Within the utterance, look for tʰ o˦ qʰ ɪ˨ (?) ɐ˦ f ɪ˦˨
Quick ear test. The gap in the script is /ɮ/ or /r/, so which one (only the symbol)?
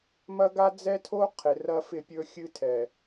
r